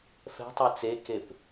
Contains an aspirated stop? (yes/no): no